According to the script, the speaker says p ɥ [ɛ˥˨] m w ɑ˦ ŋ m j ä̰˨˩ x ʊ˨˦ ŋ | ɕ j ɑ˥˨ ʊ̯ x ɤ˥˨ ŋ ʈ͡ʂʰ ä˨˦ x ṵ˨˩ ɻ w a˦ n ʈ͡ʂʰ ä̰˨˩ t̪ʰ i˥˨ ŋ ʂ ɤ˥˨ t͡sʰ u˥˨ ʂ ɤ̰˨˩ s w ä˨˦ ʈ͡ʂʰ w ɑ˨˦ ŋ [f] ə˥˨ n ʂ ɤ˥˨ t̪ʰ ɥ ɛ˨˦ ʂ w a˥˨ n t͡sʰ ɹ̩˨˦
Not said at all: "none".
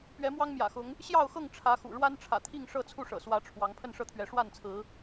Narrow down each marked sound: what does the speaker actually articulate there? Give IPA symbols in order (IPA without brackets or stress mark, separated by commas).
ɛ˨˦, pʰ